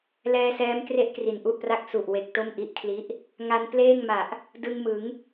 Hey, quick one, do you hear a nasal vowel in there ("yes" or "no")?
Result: no